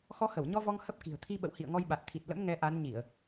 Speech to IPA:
x ɔ˧ h ə˧˩ w ɲ ɔ˧ v ɔ˧ ŋ h ə˦˥ p̚ k i̤˨˩ ə̯ t̪ʰ i˧ ɓ ə̰˧˨ w h ḭ˧˨ ə̯ ŋ ɔ˧ j ɓ a˨˩ t̚ t̪ʰ i˨˩ t̚ l ə̰˧˥ m ŋ ɛ˧ ʔ a˨˦ n ɲ i˧˩˨ ə̯

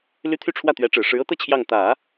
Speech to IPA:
l y˥ t̪ʰ y˥˧ ʈ͡ʂʰ w ä˥˩ t̪ ɥ ɛ˧˥ ʈ͡ʂ ɻ̩˨˩ ʂ ɻ̩˧˥ ɤ˥ t̪ ɤ˥˧ t͡ɕʰ j ɑ˥˩ ŋ t̪ ä˨˩˦

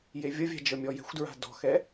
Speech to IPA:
j e vʲ ʌ vʲ a̤ d͡ʒ ɤ mʲ ɔ j ɛ̤ xʷ d ɹ a̤ d ɔ̤ x ɛ

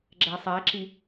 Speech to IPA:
ɡ͡ǁ æ sˤ æ ǁ i

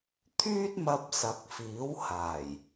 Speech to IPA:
t̪ʰ yː˥ t̚ m ɐ˧ p̚ s ɐ˨˥ k̚ f iː˨˥ w h aː˨˩ j

